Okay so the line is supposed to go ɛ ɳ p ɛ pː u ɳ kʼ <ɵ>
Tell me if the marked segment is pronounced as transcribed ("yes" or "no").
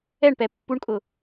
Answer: no